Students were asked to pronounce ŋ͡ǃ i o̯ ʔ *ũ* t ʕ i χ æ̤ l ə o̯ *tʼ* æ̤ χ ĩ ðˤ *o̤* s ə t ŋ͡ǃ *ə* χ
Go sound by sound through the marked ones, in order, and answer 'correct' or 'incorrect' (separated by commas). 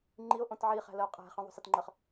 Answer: incorrect, incorrect, correct, correct